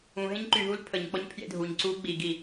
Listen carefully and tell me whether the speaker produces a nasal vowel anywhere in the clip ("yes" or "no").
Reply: yes